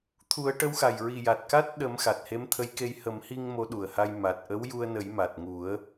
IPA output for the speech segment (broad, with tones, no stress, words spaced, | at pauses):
t̪ʰu˨˩˦ə̯ʈə˧˥wxa˨˩j ɹi˨˩ja˨˩t̚ka˦˥t̚ ɗə˨˩˦m xa˨˩t̚he˧˥mt̪ʰə˧˥jke˧j hə˨˩˦mhi˧ŋ mo˧˥ɗu˨˩ə̯ha˧j ma˨˩t̚ʔə˧˥wju˧ə̯nə˨˩˦j ma˨˩t̚ŋu˨˩˦ə̯